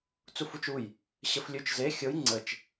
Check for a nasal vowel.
absent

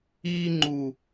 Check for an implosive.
absent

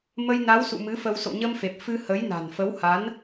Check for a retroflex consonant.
absent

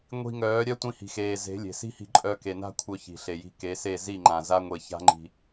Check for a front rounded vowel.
present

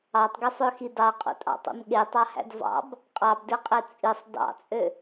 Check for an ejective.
present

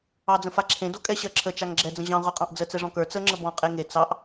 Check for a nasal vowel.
present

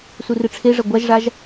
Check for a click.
absent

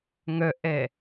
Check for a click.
absent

